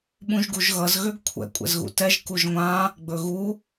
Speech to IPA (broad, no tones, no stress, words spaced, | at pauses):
ɓũʒɡuʒɣʌz ɣøɡkʷʰɛ̰ kʷʼɛ̰zɣṵtɛʒ kuʒŋʷã | ɡ͡bɵɣu